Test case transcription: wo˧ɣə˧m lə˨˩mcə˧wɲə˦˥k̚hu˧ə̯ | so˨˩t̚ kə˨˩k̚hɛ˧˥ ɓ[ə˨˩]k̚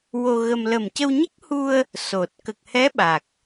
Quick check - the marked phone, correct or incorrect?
incorrect